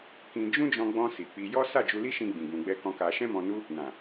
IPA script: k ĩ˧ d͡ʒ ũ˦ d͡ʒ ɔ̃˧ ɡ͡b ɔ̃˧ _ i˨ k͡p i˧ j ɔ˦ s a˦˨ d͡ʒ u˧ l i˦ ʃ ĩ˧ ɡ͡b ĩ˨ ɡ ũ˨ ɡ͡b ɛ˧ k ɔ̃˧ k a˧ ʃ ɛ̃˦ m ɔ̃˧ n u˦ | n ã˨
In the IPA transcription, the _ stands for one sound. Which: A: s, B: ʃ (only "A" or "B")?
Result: A